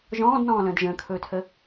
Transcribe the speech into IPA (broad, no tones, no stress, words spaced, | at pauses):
ʒɔ̃ːdnɔ̃ːlə̃ːd ʒə̃ːkʰɵːtʰə